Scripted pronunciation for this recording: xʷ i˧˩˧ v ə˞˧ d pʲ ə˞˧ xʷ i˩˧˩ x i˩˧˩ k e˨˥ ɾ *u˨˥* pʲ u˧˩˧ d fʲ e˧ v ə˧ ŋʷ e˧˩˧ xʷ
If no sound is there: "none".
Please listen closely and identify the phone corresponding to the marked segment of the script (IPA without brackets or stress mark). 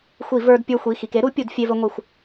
u˨˥